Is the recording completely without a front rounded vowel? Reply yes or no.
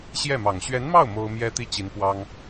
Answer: yes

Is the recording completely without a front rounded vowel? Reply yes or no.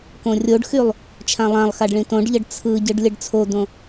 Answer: no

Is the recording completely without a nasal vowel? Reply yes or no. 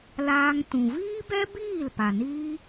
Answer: no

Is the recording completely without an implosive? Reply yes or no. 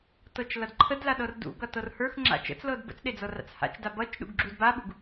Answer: no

